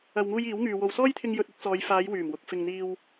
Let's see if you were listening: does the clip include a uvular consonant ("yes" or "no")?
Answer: no